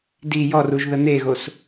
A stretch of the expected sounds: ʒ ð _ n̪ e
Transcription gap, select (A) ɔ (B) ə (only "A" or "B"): B